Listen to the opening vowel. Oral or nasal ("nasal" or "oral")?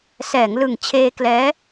oral